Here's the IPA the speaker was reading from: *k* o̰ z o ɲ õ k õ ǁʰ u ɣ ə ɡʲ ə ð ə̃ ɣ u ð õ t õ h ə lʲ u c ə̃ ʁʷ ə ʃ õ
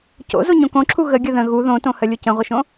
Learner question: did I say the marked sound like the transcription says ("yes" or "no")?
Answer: no